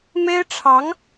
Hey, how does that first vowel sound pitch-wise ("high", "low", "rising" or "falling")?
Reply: high